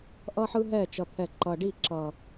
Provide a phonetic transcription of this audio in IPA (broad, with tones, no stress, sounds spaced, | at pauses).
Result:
ʔ ʌ˦ ħ ɯ˦ ɦ ɛ˦˨ t͡ʃ ʌ˨ t̪ʰ ɛ˨ ǃ ʌ˨ ɖ i˦˨ ǁ ʌ˨